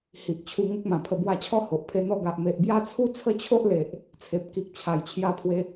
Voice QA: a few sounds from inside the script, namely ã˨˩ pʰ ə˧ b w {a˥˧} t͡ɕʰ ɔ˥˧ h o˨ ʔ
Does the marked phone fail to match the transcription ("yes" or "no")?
yes